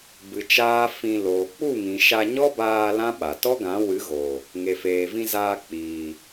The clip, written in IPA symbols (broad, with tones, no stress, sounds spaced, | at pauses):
b ɨ˨ t͡ʃ aː˦ f ĩ˧ l oː˨ k͡p u˦˨ ŋ ĩ˨ ʃ a˧ ɲ ɔ˦ b aː˧ l ã˦ ɓ a˨ t ɔ˦ ɡ ã˨˦ w ɨ˨˦ ɣ oː˨ | ŋ e˨ f eː˨ v ĩ˧ z aː˧ k͡p iː˨